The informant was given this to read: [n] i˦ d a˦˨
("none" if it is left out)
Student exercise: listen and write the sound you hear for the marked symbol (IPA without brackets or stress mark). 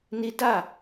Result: n